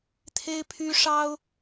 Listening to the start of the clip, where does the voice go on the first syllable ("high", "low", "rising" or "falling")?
high